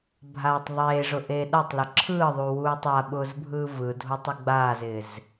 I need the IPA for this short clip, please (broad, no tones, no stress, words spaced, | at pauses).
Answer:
bʱaːtˤðˤeːʐʊʔeː ɗatˤlʊ ǁʰɯːðˤu wuːtˤaɓʊːzbʱɯː vɯdʱotˤ ɪɡ͡baːzɪːz